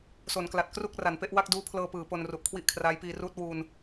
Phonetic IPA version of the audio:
s o˩˦ n k l a˨˩ t̚ k r u˥˩ k̚ r a˩˦ n p e˦˥ ʔ w a˥˩ k̚ d uː˦˥ pʰ l ɤː˧ p ɯː˩˦ p o˧ n r u˨˩ ʔ kʰ w i˥˩ ʔ kʰ r aː˦˥ j p iː˧ r uː˦˥ t̚ w uː˧ n

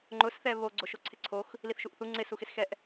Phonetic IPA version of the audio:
ŋ͡ǃ ʊ s θ ɛ β o ɡ͡ǀ o ʃ o ǀʰ ɪ ǀʰ o x | l i θ ʃ u ʔ θ u ŋ͡ǀ ɪ s u x ɪ s x ɛ ʔ

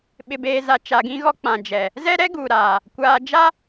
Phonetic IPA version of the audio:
ɓ ɪ˨ b eː˨ z a˨ t͡ʃ a˨ ɡ ĩ˦ ɣ ɔ˦ k͡p ã˨ d͡ʒ ɛ˨ | z ɛ˦ ɾ ɛ˦ ɡ uː˨ ɾ aː˨ | kʷ aː˨ d͡ʒ a˦

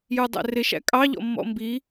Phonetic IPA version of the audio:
j ə˞ dˤ æ̰ r ɪ ʃ æ̰ kʼ ɑ ʎ ɔ̰ mː ɔ̰ m b i

